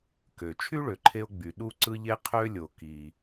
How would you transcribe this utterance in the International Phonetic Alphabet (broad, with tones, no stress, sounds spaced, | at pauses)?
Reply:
k ø˩ t͡ʃʰ y˥ ɭ ø˩ ǃʰ e˧ o̯ ɡ͡b y˩ ɗ u˧ ǀ ɯ˧ ʎ e˧ qʰ ø˧ lʲ o˩ k i˩